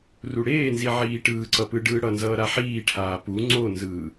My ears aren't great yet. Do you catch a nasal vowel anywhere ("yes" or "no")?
no